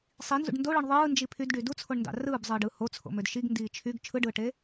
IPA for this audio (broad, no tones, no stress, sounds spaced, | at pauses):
sˤ i n z ṵ ɖ n d o ɭ ɯ ɳ ðˤ ɯː n d͡ʒ i pʰ y d ɖ y d u t͡sʰ o ɳ n d ɑ̰ r ɯː b zˤ ɯː ɖ ɯ h o t͡sʰ o̰ m ø d ʃ i ɡ n d iː t͡ʃʰ y ɡ t͡ʃʰ ɯ ɖ ɯː ʈ e